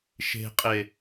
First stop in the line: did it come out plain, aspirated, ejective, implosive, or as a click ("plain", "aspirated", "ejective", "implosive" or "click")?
ejective